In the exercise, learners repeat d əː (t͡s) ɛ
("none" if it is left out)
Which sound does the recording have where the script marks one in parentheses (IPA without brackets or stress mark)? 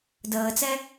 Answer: t͡s